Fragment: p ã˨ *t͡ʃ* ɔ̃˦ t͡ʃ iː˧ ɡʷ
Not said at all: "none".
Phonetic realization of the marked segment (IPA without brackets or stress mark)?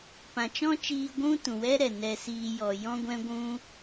t͡ʃ